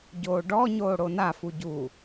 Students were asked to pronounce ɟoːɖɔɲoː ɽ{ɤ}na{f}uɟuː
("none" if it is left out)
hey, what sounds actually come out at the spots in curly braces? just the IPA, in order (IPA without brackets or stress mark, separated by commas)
o, f